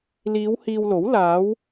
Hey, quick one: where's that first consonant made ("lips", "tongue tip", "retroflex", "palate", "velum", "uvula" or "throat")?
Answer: tongue tip